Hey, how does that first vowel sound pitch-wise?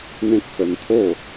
high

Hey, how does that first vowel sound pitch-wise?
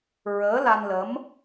rising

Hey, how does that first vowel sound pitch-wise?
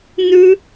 high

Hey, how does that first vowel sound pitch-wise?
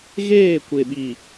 falling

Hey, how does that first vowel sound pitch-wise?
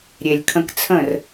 low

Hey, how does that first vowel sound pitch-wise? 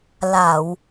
low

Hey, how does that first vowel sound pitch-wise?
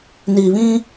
low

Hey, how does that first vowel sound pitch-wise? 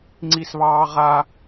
high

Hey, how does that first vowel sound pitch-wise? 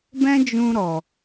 high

